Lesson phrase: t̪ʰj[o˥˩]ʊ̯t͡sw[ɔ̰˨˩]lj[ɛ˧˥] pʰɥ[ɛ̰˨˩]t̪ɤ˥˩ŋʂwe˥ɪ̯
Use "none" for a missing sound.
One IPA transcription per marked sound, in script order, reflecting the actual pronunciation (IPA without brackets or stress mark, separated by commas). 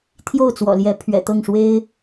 o˥˩, ɔ̰˨˩, ɛ˧˥, ɛ̰˨˩